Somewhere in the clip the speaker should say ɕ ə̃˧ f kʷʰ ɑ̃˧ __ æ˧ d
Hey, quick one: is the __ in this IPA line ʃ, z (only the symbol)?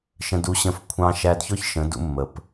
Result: ʃ